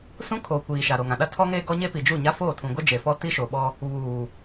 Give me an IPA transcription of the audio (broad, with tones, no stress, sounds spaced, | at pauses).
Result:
s ũ˦ kʰ oː˨ kʷ iː˨ ʃ a˨ ɾ o˨ ŋ ã˨ ɗ a˦ tʰ ɔ˦ ŋ eː˦ ɡ ɔ˦ ɲ e˦ p i˨ d͡ʒ u˦˨ ɲ a˦ f oː˦˨ tʰ ũ˨ ɡʷ ɛ˦ d͡ʒ e˨ f ɔ˦ t i˦ ʃ o˨ ɓ ɔ˦ | β uː˨